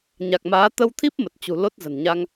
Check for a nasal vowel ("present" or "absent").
absent